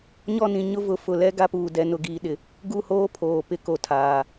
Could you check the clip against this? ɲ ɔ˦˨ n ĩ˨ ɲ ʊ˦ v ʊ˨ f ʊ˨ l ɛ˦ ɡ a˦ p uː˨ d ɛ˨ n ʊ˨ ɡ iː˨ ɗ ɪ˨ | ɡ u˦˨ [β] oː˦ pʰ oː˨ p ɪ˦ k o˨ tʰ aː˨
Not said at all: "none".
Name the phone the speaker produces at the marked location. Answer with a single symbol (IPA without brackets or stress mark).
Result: h